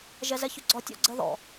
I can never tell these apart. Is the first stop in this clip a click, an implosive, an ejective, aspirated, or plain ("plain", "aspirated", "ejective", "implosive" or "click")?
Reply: click